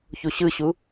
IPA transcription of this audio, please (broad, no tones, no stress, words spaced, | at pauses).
çuɕɯɕu